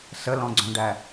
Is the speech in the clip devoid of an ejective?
yes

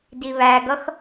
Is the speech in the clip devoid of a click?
yes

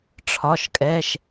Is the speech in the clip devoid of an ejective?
no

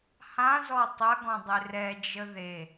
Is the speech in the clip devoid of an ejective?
yes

